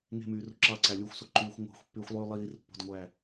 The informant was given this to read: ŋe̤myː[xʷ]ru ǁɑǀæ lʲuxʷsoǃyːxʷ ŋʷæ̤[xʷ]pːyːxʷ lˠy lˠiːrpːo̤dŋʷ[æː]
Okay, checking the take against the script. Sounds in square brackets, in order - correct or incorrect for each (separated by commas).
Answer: incorrect, correct, correct